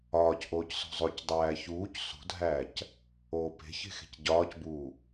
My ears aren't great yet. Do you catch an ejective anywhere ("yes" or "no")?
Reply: no